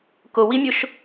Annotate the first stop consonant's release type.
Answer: plain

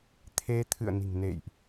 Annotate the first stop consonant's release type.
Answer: aspirated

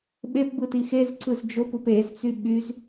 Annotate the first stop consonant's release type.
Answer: implosive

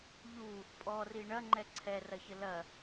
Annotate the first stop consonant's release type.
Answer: ejective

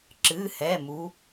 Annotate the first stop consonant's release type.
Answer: click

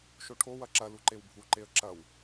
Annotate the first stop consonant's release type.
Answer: aspirated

